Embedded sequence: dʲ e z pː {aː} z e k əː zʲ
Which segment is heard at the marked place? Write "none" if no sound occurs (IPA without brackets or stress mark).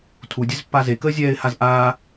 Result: a